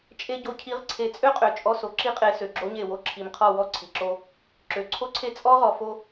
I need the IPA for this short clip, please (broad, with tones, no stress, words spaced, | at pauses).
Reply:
t͡ʃʼe˦ ɟo˨cʰi˨˦ʁ ǀʰe˨˦t͡sʼø˦qʼø˨ t͡ʃʼɔ˦so˨ ǁi˦qʼe˨˦ sø˨ɡ͡ǁo˦ɲe˦˨wo˦ ǁʰi˨mqʰɔ˦˨ wɔ˦˨ǀʰi˨ǁo˦ | ǁø˨ǀʰo˦ǀʰe˦ t͡sʼɔ˦ʁɔ˨fo˦